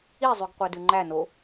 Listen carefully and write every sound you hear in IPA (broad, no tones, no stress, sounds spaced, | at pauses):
i zˤ ʉ ɡ qʷ æ d ʉ ŋ͡ǃ æ n o